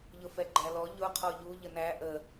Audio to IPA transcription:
ʎ ʊ f ɛ ɡ͡ǃ æ l ɔ ʎ ʊ qʰ ɔ ʎ u ʎ ə n æ ʔ ə

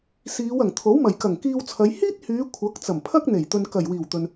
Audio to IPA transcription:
s iː˨˧ w ɐ˨˩ ŋ t̪ʰ o˨˥ w m ɐ˨˩ j k ɐ˨˩ ŋ k iː˧ w t͡sʰ ɐ˨˧ j h iː˥ t̚ h yː˨˧ kʷʰ ɐ˨˥ k̚ t͡s ɐ˨˩ m pʰ ɐ˥ k̚ n̪ e˨˩ j t̪ ɵ˨ n k ɐ˨˩ j w iː˨˩ w t̪ ɵ˨ n

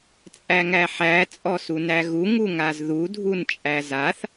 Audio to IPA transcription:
t͡sʼ æ ŋ æ ħ æ t͡sʼ ɔ s u n æ ɣ u ŋ u ŋ a z ð u dʱ u n t͡ʃʼ æ z a θ

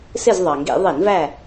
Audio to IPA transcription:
s ɪ˦˨ z ðˤ ɑ˩ ŋ ɡ ḭ˧˩˧ ðˤ i˧˩˧ n v æ˦˨

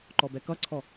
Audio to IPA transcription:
ǃ ɔ b ɛ k ʌ ǀʰ ɔ

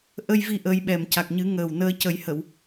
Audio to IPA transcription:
ʔ ə˧ j v i˧ ʔ əː˧ j ɓ ɛ˨˩ m c a˨˩ k̚ ɲ ɨ˨˩˦ ŋ əː˨˩ w n əː˧ c ə˨˩˦ j h ə˨˩˨ w

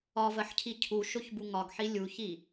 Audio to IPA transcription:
ɒ v ɜ ħ cʰ i cʰ u ʃ o ç b u ŋ ɒ ɡ ħ i lʲ u ç i

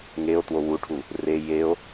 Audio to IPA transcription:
ŋ e o̯ t w o w u ʈʰ u | r e j e o̯

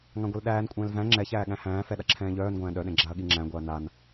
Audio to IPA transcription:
ŋ ã ɡʷ ɛ l ɗ æː n kʷʼ ɛ̃ː l v æ̃ ŋ͡ǁ ɛ ç æː ɠ æ̃ h æ̃ː f ɛ ɗ a ǁʰ ɛ̃ː ʎ œː n ɡʷ æ̃ː ɗ œ ɗ ɛ̃ ɡ͡ǁ a ɐ̯ ɠ i ŋ͡ǁ æ̃ ɡʷ æ ɐ̯ n a n

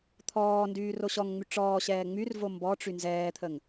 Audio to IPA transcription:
t̪ʰ ɔː n d yː r o ɕ ɔ ŋ ŋ͡m y ʈ͡ʂ ɔː ɕ ɛː ŋ͡m y r v o m b ɔ ʈ͡ʂ y n z ɛː t̪ʰ ə ŋ

